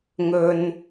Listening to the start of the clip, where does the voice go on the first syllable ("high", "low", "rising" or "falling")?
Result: low